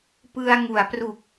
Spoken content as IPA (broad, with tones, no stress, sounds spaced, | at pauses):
p ɯ˧ a̯ ŋ u˩˦ a̯ p r u˨˩ k̚